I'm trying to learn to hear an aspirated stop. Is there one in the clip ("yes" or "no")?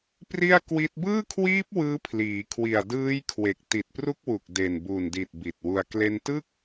yes